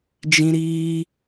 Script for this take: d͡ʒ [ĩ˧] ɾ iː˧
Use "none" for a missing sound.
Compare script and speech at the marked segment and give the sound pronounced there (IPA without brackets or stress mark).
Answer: ĩ˧